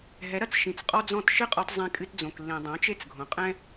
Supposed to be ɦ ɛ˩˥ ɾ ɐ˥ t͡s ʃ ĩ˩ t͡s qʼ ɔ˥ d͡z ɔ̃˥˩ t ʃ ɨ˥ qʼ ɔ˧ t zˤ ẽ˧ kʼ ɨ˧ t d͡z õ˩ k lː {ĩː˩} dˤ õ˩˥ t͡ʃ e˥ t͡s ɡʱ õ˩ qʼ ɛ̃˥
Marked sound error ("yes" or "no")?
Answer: yes